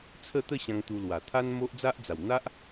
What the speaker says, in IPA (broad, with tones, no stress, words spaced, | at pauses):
t͡sʰə˥˧t̪ə˥˧ɕã˧ŋ t̪u˧lwa˨˩ t̪ʰa˦nmo˦ʔd͡za˦ʔd͡za˨˩w n̪a˦ʔ